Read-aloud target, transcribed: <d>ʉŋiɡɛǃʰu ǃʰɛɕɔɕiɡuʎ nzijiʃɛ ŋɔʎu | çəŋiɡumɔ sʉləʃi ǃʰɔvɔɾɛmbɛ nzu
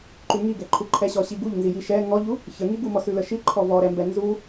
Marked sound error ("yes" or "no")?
yes